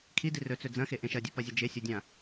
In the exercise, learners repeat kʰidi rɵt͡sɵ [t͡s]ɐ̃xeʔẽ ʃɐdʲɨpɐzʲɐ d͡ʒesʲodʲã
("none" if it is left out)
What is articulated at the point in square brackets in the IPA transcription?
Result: d͡z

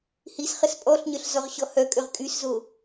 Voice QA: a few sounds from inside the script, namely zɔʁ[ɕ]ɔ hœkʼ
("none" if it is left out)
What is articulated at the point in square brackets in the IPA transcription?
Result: ɕ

